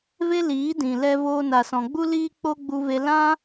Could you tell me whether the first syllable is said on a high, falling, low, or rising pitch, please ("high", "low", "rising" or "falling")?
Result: high